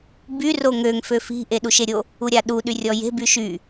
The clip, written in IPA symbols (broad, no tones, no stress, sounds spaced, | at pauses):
b y r o ŋ ø ŋ f ø f i̤ ʔ e ɗ u ʃ e ɾʲ o | u ɾʲ a ɗ u ɗ y rʲ ɔ j e̤ b y ʃ y